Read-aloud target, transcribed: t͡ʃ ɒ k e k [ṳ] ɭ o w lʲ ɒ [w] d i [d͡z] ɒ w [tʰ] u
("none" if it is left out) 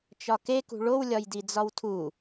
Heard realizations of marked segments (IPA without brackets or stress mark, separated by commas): ṳ, j, d͡z, tʰ